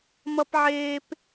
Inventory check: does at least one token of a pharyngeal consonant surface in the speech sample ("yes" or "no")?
yes